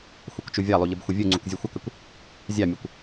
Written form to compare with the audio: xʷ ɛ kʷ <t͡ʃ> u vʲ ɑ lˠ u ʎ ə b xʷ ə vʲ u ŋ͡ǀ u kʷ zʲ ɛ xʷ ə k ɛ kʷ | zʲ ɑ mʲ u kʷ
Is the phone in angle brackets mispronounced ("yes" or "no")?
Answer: no